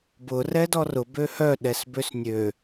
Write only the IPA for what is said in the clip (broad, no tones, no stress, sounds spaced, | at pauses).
b ʊ r ɛ d ɔ r ʊ b ø h œ ɗ ɛ s b ø s nʲ ø